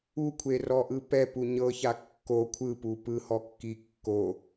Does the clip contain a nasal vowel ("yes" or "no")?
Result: no